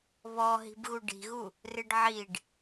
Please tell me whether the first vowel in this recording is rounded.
yes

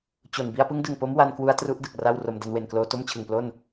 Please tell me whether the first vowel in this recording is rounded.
yes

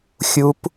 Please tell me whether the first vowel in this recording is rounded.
yes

